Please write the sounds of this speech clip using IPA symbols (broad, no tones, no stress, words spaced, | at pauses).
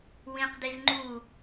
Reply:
wĩqdiz ŋ͡ǃu